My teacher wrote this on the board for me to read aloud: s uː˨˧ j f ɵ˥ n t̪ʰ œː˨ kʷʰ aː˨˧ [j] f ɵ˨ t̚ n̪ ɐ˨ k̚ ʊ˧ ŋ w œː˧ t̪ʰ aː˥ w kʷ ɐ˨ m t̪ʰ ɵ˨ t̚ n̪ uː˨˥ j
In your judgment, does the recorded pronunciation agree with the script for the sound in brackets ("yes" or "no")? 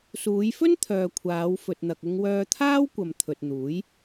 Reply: no